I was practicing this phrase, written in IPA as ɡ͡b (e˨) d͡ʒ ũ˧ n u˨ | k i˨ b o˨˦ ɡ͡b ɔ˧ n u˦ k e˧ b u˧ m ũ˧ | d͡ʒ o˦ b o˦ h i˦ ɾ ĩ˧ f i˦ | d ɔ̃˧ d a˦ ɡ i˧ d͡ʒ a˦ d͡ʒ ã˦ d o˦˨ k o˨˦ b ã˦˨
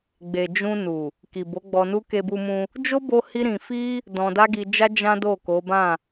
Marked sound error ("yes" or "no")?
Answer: no